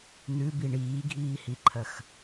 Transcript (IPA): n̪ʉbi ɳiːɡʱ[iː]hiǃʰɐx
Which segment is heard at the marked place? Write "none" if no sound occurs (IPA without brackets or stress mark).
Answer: iː